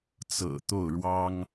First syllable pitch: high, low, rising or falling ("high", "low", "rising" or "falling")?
low